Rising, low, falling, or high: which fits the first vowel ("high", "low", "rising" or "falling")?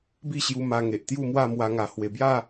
falling